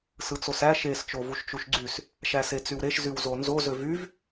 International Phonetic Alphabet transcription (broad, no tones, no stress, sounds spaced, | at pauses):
s ɯ t͡s o s æ ʃ e s t͡ʃ o v u ʃ t͡ʃ u ʃ ɡ͡ǀ y s | ʃ æ s e t͡s y w ɾ e ʃ z y w z o n z o z ø v y v